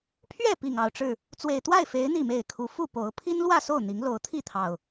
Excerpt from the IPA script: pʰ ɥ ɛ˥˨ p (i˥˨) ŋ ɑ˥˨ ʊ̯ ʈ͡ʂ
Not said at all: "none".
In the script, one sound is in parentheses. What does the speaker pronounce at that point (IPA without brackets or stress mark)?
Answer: i˨˩